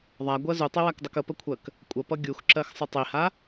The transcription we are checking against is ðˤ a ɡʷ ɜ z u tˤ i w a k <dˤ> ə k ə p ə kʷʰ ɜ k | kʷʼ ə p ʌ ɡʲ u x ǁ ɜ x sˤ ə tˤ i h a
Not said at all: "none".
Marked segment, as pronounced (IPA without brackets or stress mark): dˤ